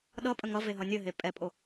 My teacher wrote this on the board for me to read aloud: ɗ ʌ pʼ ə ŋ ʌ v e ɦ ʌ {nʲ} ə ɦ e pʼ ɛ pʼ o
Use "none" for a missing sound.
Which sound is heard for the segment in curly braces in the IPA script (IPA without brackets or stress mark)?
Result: nʲ